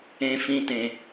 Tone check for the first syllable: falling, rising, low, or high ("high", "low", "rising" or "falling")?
high